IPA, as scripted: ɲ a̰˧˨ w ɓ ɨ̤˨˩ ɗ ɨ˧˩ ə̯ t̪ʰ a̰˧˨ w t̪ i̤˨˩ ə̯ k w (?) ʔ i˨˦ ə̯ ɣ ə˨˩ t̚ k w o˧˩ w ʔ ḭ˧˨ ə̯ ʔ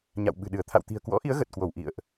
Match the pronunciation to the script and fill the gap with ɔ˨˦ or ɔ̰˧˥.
ɔ̰˧˥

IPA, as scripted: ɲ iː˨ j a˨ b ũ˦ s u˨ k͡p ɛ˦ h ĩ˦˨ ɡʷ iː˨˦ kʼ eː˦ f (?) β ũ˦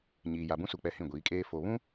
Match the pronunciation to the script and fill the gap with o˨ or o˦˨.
o˨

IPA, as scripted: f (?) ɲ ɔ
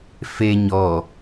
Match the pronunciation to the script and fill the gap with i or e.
e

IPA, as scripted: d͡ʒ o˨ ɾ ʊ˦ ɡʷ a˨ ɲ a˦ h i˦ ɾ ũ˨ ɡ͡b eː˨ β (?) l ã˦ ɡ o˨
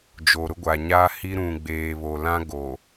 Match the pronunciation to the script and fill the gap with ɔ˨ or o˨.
o˨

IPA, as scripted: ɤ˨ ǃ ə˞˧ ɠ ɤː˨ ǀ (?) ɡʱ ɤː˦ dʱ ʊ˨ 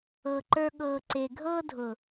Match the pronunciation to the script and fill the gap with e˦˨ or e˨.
e˨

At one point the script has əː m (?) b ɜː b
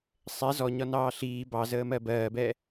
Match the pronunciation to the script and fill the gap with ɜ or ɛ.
ɜ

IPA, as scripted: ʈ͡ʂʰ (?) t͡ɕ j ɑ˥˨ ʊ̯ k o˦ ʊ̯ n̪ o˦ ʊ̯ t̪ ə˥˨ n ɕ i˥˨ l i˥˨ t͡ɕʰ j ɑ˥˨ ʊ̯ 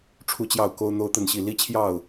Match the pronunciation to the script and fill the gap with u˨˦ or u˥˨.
u˥˨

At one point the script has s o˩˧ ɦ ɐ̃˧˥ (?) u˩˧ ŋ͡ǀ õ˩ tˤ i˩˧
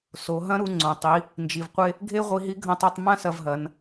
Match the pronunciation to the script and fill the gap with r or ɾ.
ɾ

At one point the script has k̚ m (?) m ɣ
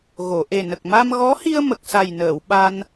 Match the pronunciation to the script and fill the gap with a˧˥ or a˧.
a˧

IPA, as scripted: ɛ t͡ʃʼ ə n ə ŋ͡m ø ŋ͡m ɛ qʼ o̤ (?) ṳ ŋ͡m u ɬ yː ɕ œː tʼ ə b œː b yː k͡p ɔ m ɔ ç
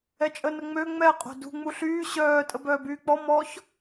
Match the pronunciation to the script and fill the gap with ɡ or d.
d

